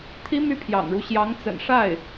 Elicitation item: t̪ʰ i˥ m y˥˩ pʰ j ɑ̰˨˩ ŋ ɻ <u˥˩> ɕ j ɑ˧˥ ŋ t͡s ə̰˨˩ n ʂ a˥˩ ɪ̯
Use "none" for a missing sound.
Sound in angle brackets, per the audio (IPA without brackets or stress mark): u˦